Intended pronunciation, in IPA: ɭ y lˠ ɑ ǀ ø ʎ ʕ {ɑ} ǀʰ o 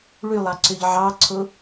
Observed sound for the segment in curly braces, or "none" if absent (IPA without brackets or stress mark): ɑ